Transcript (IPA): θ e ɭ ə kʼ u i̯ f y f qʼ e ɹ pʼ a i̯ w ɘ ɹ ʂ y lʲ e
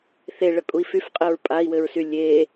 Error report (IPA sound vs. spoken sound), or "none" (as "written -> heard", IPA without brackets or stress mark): ʂ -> s